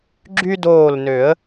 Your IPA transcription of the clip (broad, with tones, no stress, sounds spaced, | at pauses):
ɡ͡ǁ y˦ d oː˧˩ l n ø˨˩˦ ə̯